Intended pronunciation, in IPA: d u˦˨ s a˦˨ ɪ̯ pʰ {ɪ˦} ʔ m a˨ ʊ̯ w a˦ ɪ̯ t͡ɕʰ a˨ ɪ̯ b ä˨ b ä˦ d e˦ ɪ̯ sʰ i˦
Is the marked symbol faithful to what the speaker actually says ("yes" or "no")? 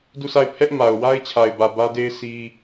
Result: no